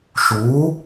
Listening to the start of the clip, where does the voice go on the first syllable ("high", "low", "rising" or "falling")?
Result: rising